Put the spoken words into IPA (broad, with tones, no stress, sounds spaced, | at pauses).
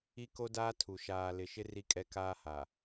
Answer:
i˦ k o˦ d aː˦ tʰ u˨ ʃ aː˨ l ɪ˨ ʃ ɪ˦ r i˦ kʼ ɛ˦ k aː˦ h a˨